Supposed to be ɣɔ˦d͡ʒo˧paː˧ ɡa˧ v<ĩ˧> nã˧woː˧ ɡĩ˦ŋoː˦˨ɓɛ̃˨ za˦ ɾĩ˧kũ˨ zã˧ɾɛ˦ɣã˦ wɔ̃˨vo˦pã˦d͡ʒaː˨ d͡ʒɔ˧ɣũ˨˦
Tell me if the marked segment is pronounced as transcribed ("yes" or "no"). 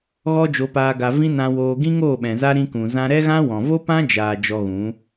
no